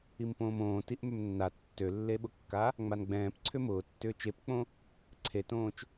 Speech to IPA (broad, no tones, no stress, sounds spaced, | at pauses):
i m p õː m õː t i ʔ m ʏ m nː a tː ø lː e ɓ ʊ kː a | ŋ͡m a n ɡ͡b ɛ̃ː p ǀʰ ʏ m ʊː tː ʏː t͡ʃ e p k͡p õ | ǀʰ e t õː t͡ʃ